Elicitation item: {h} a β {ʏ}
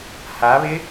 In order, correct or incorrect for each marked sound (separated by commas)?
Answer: correct, incorrect